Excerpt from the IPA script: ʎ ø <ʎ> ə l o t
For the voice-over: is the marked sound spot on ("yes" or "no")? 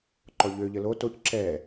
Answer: yes